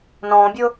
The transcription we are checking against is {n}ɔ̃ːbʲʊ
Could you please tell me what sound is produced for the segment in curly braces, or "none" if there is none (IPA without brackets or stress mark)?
n